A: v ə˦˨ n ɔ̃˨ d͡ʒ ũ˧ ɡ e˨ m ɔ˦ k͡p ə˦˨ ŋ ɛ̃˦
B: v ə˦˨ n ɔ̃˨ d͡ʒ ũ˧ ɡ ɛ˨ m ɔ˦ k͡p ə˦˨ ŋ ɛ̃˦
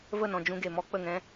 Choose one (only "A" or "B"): A